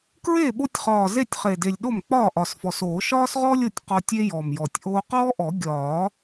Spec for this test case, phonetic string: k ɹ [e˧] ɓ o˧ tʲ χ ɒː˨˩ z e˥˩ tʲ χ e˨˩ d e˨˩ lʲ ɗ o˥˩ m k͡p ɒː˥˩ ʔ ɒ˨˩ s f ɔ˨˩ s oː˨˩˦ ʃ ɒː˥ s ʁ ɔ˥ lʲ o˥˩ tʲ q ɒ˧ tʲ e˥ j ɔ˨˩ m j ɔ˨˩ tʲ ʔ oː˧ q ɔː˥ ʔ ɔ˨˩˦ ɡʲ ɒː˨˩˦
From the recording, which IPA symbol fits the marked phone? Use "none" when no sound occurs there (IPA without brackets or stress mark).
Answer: e˥˩